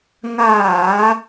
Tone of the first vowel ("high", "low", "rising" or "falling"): low